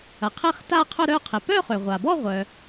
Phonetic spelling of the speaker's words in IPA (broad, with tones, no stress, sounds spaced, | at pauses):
ɐ˩ qʰ e˥˧ χ t a˥˧ qʰ ʊ˥˧ ɾ œ˥˧ qʰ ɪ˩ p œ˥˧ χ ø˩ ʁʷ a˩ b ɔ˥˧ ʁʷ œ˩